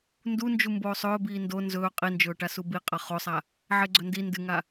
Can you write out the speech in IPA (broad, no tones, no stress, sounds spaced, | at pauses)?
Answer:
n d u n d͡ʒ u m b oː sˤ ɵː b iː n d o n z ɵː qʼ i n d͡ʒ ɵː ʈ a s u b i qʼ ɐ χ o sˤ a | ʕ e ɡ͡ǀ ɵ n d i n d ɨ ŋ a